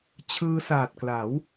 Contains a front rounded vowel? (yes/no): no